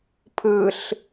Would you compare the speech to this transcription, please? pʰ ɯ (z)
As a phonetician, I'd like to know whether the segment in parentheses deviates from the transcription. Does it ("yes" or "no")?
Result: yes